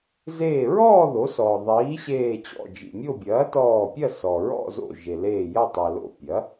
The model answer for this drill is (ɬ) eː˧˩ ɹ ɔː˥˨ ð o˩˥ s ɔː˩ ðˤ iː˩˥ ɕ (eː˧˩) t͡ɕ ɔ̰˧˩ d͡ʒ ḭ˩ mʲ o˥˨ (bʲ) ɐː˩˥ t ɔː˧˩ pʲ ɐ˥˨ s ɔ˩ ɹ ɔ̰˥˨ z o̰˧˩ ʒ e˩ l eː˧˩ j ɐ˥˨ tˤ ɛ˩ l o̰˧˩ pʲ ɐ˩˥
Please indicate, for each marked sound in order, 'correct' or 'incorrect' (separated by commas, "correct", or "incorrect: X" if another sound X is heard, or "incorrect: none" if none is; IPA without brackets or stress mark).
incorrect: z, correct, correct